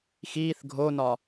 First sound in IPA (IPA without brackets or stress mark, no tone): x